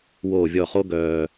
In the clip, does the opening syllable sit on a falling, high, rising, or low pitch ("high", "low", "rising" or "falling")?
low